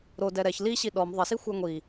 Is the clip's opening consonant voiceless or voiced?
voiced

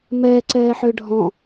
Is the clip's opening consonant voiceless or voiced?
voiced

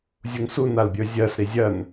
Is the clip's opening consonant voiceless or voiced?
voiced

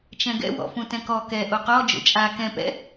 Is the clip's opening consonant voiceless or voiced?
voiceless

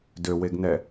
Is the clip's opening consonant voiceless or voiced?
voiced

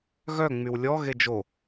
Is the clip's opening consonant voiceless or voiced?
voiced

